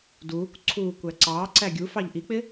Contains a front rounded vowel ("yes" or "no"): no